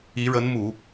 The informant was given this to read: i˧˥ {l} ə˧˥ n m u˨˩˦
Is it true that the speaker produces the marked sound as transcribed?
no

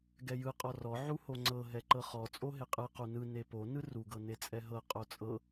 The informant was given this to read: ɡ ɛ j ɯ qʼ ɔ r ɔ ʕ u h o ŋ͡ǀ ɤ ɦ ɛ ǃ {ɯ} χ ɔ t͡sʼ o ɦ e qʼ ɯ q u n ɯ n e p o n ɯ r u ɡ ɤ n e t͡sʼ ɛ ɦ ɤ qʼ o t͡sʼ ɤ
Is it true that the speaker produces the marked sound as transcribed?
no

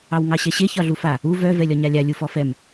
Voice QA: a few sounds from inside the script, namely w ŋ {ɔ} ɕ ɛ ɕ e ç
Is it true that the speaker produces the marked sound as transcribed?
no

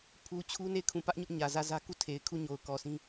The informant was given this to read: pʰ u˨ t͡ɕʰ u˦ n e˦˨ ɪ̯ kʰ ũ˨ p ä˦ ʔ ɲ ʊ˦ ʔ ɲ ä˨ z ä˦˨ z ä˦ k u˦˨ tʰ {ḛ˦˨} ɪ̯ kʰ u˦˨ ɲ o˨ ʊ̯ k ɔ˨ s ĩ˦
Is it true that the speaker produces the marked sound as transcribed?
no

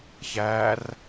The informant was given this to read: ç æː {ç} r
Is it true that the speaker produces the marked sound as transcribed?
no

